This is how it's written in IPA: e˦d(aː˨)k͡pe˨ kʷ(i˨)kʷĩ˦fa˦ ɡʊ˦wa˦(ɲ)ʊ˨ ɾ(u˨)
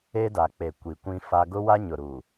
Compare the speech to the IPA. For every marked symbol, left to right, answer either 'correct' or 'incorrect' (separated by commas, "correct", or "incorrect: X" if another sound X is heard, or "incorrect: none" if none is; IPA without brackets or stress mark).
incorrect: a˨, correct, correct, correct